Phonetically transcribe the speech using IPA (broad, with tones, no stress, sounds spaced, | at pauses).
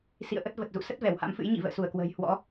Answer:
s ḭ˧˨ ə̯ ʔ ə˦˥ t̚ v ə˨˩ t̚ z ṵ˧˨ s ə˦˥ t̚ v ɛ˧˩ w h a̰˧˥ m f ɨ̰˧˥ j ɲ ḭ˧˨ v ə̰ː˧˨ s u˧˩ ə̯ k w ə̤ː˨˩ j h w ɔ̰˧˥